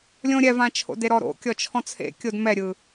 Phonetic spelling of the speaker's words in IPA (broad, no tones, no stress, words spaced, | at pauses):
lʲõ ɾʲɛvãt͡ʃʰo̰ deɾɔɾo̰ kʲɔt͡ʃʰɔ̃t͡sʰḛ kʲodmɛɾʲɯ